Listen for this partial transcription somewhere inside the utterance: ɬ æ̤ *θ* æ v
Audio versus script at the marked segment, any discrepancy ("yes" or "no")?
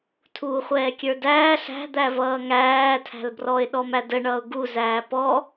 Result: yes